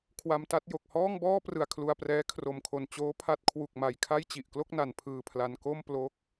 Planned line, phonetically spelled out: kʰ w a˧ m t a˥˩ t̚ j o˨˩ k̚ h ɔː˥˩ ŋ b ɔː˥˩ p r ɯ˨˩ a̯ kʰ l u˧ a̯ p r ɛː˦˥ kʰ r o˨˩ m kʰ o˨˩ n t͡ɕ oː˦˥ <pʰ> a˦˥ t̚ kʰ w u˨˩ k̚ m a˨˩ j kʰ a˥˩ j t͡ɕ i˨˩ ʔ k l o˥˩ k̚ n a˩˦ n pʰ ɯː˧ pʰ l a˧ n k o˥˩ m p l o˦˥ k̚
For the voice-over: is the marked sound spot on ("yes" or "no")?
yes